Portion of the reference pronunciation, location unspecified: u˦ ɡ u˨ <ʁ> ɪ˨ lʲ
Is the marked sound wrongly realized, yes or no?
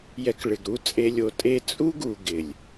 yes